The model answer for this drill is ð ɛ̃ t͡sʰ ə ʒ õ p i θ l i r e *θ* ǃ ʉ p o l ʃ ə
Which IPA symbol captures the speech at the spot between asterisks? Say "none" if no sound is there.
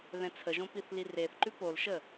θ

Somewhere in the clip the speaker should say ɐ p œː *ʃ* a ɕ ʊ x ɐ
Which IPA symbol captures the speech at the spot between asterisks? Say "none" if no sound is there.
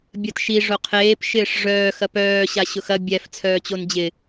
ɕ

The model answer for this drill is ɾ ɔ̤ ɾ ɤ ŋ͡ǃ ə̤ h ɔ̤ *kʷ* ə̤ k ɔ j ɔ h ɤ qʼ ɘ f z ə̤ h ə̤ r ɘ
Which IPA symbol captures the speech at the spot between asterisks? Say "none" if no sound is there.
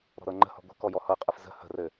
ɡʷ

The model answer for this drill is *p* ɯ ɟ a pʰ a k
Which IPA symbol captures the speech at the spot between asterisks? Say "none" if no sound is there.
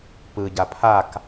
p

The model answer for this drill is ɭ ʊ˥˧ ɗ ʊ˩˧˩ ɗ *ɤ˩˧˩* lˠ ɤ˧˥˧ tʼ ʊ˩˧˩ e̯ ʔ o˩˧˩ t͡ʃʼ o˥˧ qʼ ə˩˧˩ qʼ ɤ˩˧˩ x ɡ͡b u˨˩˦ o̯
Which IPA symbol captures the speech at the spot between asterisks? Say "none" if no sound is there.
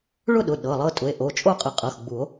ɤ˩˧˩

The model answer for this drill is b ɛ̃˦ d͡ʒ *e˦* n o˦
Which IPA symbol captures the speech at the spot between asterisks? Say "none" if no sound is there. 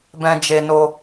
e˦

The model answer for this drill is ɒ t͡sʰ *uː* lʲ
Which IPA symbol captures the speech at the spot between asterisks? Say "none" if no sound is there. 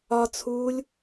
uː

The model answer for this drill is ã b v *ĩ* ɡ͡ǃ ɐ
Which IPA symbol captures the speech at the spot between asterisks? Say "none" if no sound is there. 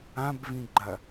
ĩ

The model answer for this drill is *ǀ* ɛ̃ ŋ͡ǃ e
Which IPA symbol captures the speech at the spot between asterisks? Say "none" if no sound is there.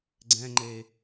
ɡ͡ǀ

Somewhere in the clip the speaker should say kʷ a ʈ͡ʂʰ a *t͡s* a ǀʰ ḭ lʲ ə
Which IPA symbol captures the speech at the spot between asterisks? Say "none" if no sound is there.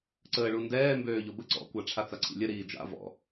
t͡s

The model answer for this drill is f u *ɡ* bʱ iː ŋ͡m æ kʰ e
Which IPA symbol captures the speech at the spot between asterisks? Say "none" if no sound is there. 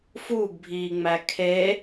ɡ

